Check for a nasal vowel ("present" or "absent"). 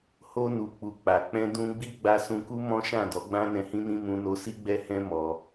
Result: present